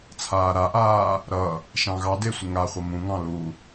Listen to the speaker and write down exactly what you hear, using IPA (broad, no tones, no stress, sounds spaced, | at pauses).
t͡sʰ aː ɾ a ʔ aː | ɾ ʌ | ʃ ɑ̃ ɣ ɑ d e sʷ ə ŋ a χʷ ʌ m ũ ŋ ɑ̃ l u